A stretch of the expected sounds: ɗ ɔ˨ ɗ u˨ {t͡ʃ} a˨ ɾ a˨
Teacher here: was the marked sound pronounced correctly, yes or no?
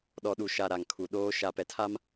no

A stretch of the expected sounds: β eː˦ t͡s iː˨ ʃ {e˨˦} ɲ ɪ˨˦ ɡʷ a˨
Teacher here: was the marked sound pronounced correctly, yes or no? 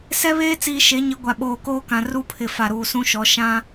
yes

